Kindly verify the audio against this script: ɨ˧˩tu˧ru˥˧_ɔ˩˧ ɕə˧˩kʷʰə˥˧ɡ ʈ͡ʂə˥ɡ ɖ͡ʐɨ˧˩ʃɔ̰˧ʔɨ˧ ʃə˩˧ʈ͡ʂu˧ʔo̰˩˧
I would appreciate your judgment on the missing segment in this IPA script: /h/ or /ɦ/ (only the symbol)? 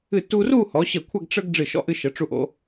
h